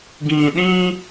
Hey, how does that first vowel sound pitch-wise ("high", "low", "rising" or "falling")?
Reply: low